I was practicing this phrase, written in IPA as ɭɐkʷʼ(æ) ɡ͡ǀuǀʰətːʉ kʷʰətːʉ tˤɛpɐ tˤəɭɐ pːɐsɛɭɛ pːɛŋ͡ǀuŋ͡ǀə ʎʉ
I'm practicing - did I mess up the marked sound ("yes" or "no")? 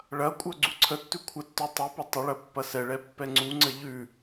yes